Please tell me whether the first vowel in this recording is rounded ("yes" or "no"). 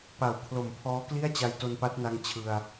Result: no